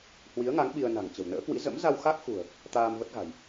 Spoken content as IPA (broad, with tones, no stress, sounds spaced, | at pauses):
h w i˨˦ ə̯ ŋ a˨˦ ŋ ɓ i˧ ə̯ n a̤˨˩ ŋ t͡ɕ ə̤˨˩ w n ə̰ː˧˥ k w ḭ˧˥ z ə̰˧˥ m z a˧ w x a˦˥ k̚ x ṳ˨˩ ə̯ | t̪ aː˧ m v ə˦˥ t̚ ɣ a̤˨˩ j